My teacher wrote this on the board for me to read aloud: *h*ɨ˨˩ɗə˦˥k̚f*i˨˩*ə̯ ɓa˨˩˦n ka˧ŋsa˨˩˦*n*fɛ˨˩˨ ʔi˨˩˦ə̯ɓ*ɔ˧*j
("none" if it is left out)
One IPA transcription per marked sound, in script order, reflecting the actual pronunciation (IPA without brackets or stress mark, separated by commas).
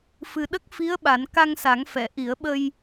f, i˧˥, ŋ, ə˧